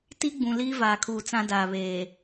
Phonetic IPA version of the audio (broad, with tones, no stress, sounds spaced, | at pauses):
t i˦ ɡ͡b ũ˨ l iː˦ v aː˨ kʰ uː˨ t͡s ã˦ d aː˨ β eː˨